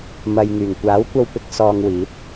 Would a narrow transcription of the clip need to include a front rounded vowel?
yes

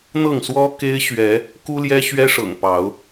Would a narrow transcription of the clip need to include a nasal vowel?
no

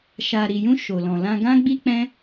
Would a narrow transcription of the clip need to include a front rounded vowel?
no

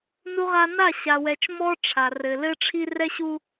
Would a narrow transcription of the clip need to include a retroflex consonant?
yes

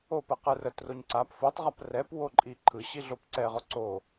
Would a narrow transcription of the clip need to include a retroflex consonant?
no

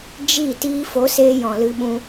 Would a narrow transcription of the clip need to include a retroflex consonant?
no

